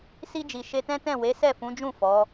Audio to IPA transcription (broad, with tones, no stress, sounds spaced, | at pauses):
s i˧ d͡ʒ i˨ ʃ e˧ t ɛ̃˦ t ɛ̃˦˨ w e˨˦ s ɛ˦˨ f ũ˨˦ d͡ʒ ũ˦˨ f ɔ˨˦